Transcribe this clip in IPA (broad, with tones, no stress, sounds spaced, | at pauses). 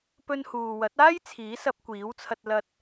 p ɵ˧ n h uː˨ w ɐ˨˥ t̚ aː˥ j t͡sʰ iː˨˥ s ɐ˧ p̚ kʷ iː˨˥ w t͡sʰ ɐ˧ t̚ l ɐ˧ t̚